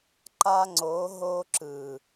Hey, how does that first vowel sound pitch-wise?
high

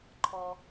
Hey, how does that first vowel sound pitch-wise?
low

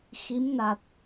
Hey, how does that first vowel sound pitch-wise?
rising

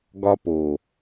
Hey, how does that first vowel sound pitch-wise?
high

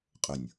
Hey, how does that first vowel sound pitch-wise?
low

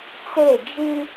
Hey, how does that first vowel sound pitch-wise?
falling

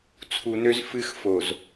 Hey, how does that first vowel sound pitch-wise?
low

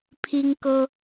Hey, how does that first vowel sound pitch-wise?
high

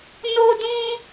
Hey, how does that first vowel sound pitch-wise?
high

